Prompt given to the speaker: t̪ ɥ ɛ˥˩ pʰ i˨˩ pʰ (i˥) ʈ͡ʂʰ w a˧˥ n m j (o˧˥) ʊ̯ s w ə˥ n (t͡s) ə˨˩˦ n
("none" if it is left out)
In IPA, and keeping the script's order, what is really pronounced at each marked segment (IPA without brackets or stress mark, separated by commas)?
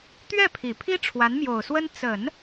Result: i˥, o˨˩, t͡s